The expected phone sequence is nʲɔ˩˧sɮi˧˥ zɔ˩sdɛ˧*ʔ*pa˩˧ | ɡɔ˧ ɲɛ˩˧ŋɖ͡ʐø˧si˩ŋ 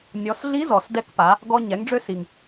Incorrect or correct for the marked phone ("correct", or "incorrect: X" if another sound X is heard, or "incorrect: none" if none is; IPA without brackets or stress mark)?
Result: incorrect: k